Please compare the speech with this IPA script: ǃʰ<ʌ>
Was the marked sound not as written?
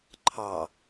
yes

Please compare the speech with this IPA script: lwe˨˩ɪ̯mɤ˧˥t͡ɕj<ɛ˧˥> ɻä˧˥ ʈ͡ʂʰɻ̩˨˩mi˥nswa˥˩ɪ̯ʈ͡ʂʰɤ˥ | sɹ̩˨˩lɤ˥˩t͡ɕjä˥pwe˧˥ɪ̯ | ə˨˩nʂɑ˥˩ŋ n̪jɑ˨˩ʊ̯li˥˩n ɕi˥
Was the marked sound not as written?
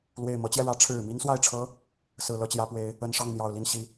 yes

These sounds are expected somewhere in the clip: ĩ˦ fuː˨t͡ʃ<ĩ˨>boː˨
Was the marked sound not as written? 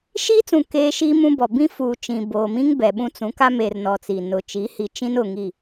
no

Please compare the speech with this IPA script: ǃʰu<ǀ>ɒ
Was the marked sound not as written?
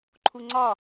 yes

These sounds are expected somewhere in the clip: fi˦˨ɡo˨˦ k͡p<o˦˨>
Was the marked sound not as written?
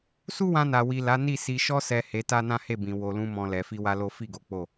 no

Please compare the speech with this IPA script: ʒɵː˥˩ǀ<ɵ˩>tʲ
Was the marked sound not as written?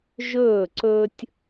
yes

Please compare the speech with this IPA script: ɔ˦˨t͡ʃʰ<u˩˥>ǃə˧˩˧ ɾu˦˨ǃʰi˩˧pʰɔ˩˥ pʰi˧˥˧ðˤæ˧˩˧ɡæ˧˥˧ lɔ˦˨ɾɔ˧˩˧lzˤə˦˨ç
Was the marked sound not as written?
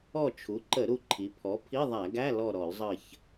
no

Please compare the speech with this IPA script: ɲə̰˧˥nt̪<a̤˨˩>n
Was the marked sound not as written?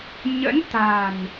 no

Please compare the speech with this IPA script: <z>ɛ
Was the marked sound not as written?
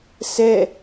yes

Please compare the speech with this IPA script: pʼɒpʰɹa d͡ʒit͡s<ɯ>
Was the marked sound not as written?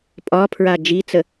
yes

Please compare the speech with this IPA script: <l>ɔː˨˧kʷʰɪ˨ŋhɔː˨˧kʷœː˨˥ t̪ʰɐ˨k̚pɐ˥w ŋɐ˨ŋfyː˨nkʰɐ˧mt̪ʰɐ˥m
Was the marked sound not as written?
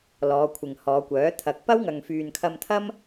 no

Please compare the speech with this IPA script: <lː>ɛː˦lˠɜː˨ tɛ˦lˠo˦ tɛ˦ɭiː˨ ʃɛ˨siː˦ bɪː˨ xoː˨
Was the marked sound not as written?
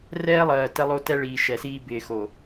yes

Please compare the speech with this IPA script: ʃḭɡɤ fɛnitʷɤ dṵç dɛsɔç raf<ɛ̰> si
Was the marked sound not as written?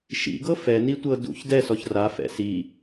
no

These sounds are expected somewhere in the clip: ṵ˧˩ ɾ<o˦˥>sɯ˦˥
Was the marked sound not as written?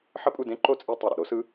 no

